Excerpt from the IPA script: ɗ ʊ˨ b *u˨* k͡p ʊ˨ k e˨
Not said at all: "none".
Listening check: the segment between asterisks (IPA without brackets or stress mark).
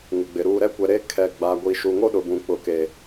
ũ˨